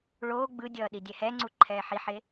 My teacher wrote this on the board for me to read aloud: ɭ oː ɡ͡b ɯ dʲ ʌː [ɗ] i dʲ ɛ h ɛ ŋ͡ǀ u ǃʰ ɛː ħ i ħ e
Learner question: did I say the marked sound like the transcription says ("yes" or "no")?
yes